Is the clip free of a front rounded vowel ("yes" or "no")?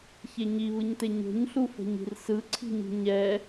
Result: yes